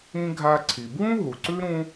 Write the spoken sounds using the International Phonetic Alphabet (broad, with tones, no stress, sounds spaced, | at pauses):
ĩ˥ ɡʱ a˦ ǀʰ i˨ b w ũ˥ ɦ u˨ ǀ ʉ˥ ɾ ũ˥